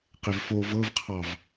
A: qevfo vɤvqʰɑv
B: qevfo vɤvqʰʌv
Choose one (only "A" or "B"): A